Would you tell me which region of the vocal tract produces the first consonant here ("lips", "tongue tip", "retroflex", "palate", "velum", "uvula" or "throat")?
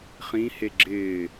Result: uvula